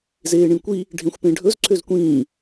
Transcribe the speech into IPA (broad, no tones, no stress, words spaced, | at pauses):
zeːɳĩkʷi | ɖʱẽxʷpẽɖʱɵz ǀʰøzkʷĩː